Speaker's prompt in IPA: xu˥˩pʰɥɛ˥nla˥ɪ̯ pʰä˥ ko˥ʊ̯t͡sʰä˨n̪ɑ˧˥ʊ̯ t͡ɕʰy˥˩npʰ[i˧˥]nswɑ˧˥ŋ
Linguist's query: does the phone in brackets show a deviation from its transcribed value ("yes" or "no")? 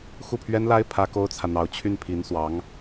no